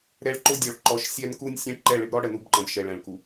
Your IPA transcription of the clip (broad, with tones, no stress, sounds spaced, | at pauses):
ɾ ɛ˦ ɭ ǃ ʊ˦ dʲ ɔ˨ ɭ ǃ ɔ˨˦ ʃ sʲ ɛ˦ n k u˦ nʲ sʲ ɛ̃˦ ʈ ǃ ɛ˦˨ ɭ ɪ˦ b ɾ ɔ˦ ɽ ə˨ n u˦ b ǃ ə̃˨ b ʃ ɛ˨ ɭ ɛ̃˨ ɭ k u˨